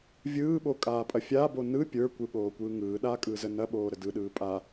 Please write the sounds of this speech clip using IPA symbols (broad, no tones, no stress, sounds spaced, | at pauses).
vʲ ɯː ɓ o kʼ aː pʼ ɐ fʲ a b o n ɯ pʲ ə˞ kʷ ɯ ɠ oː kʷ ɯː ŋ ɯː ɗ aː kʼ ɯː z ə n ɐ ɓ oː ɾ ə d ɯ ɗ ɯː pʼ a